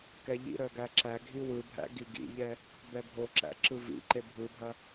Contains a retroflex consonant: no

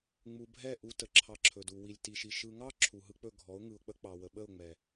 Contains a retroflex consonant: no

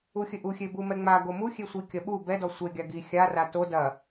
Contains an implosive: yes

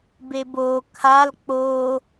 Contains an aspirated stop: yes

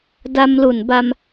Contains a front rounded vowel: no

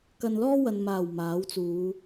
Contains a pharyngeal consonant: no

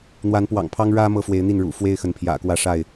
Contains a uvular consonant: no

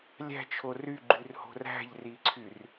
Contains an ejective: no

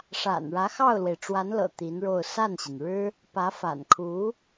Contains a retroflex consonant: yes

